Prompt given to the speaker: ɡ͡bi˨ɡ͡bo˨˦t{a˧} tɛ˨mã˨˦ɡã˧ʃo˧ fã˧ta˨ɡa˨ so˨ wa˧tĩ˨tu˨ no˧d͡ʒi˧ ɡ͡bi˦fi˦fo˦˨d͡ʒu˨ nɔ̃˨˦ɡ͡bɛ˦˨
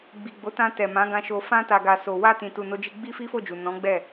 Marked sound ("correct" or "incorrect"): incorrect